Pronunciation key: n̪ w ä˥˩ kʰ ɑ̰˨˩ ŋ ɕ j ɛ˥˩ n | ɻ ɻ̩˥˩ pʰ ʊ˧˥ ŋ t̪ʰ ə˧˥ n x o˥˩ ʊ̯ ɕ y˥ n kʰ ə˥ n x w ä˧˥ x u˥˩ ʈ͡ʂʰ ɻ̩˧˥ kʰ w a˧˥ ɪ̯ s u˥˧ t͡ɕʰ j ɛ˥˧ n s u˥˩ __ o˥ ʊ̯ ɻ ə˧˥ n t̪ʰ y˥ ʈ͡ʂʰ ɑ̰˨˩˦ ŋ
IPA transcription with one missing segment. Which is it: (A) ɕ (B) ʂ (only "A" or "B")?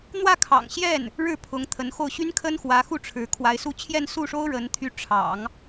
B